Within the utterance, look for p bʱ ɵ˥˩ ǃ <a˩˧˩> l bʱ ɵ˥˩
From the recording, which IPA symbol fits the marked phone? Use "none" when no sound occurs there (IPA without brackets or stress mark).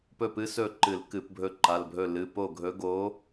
a˩˧˩